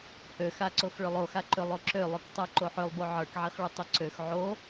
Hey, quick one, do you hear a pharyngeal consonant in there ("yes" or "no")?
yes